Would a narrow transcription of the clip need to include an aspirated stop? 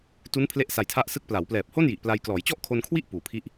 yes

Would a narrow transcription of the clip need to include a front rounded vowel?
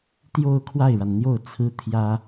no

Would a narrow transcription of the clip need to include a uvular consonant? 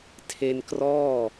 no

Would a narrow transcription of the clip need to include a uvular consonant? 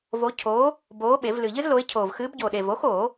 no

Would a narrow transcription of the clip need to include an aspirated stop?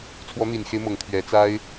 yes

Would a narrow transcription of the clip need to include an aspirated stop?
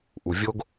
no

